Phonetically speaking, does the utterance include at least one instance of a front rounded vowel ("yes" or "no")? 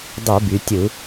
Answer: yes